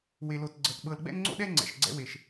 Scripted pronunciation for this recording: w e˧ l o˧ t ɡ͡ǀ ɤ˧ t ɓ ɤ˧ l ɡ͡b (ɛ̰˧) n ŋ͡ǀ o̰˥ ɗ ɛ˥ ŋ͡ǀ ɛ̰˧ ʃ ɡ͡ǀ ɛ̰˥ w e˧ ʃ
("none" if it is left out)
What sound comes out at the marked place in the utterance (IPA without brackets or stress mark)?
ɛ̰˥